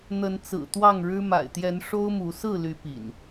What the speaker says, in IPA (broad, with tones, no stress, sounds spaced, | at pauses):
n̪ ə˨˦ n t͡s ɹ̩˨˩ t̪ w ɑ˥˨ ŋ ɻ ɻ̩˦ m a̰˨˩ ɪ̯ t̪ j ɛ˨˦ n ʂ o˦ ʊ̯ m u˨˦ s ɹ̩˥˨ l y˨˦ p ḭ˨˩ n